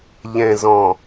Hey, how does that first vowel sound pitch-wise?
low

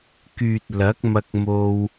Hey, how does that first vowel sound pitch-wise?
low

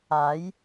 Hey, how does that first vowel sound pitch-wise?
rising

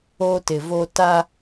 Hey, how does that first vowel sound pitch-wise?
high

